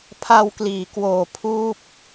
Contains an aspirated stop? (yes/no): yes